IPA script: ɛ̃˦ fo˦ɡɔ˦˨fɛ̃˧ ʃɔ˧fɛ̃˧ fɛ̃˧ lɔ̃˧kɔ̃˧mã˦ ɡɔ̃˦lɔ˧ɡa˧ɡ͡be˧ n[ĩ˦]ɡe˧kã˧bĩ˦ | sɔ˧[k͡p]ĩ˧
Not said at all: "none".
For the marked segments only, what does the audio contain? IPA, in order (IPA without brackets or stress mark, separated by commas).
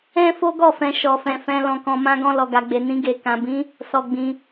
ĩ˦, ɡ͡b